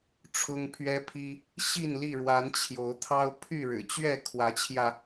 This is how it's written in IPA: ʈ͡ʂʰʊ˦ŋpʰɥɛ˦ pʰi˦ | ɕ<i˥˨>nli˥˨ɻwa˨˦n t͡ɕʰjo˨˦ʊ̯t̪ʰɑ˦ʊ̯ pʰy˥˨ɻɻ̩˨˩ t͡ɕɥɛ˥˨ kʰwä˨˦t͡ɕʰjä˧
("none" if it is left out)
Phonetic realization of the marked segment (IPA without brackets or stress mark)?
i˥˨